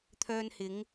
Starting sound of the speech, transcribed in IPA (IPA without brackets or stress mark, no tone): t̪ʰ